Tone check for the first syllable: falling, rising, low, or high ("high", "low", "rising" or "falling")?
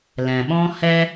low